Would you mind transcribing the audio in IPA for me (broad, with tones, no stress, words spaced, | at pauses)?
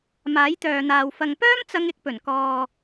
maː˨˥jt̪œː˨n̪aː˨w fɐ˨ŋpœː˥m t͡sɐ˥ŋɪ˥k̚ pɵ˨˩nkɔː˨